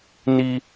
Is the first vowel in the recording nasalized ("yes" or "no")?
no